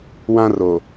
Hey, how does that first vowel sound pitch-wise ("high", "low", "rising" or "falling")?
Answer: high